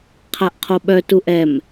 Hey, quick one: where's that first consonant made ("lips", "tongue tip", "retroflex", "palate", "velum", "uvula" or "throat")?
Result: uvula